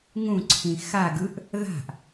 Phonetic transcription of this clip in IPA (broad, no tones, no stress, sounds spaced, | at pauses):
ŋ ũ ǀʰ ĩ x a ɡ ɯ ʔ | ð a̤ ʔ